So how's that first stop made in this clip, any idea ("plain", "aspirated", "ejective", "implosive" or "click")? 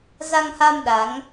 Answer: implosive